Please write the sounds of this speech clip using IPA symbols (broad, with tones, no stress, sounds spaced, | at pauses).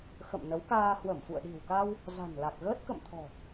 x ə̰˧˨ m n ə˨˦ w k aː˧ h w ə˧˩ m f ṵ˧˨ ə̯ ɗ i̤˨˩ w k a˧ w | z a̤˨˩ n l a˨˩ k̚ ɣ əː˦˥ t̚ k ə̰˧˨ m t̪ʰ ɔ̤˨˩